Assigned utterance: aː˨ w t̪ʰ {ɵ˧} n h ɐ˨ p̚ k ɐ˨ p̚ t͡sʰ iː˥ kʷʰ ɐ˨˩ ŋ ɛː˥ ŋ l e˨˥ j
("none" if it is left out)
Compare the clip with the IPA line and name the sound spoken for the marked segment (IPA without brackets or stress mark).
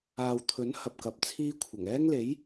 ɵ˨˥